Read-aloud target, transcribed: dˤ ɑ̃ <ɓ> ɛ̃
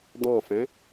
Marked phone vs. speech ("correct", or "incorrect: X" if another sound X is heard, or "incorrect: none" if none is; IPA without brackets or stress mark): incorrect: f